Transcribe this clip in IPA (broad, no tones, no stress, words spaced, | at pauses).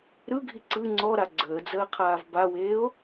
ɾɯɡʱi ǀɯ ŋ͡ǀɔɾa ɡ͡ǀəːd͡zəː qʰaːvbaweːo̯